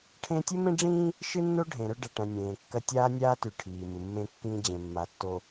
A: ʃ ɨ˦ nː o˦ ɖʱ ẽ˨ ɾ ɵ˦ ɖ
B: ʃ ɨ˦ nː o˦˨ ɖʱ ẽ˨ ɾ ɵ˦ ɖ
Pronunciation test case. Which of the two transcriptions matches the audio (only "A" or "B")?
A